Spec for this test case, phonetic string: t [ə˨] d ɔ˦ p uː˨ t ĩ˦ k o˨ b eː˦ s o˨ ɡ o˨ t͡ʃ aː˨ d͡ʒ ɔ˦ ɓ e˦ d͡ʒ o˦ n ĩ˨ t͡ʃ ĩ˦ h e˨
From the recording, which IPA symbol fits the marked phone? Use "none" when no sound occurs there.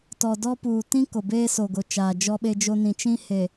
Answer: ɔ˨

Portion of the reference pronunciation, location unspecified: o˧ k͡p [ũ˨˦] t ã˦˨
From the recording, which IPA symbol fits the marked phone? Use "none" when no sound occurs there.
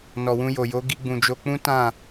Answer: ũ˦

